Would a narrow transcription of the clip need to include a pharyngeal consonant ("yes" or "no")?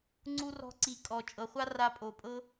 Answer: no